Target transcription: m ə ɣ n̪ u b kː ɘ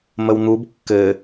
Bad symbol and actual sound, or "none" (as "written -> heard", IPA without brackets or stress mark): ɣ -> w